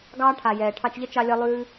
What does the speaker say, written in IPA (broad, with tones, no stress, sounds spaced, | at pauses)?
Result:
ɡ ɑː˦ ʈʰ a˨ j ɛː˨ ʈʰ ɑ˧ t͡ʃ ʎ ʌ˦ t͡ʃ ɑ˦ lʲ ʌ˦ lˠ ʉː˦